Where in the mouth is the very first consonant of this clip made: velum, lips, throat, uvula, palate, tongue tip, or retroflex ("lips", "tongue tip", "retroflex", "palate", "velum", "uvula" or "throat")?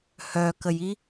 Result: throat